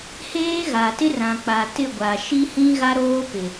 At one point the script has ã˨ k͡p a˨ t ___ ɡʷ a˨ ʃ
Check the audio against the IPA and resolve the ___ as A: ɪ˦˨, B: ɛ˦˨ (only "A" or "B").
A